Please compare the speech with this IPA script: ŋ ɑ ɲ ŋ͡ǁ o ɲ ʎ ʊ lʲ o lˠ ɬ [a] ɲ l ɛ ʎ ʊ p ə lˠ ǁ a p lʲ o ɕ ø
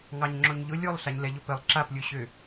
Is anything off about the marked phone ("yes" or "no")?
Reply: no